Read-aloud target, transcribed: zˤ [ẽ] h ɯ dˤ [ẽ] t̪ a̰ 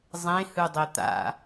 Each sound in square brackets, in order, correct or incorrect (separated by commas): correct, incorrect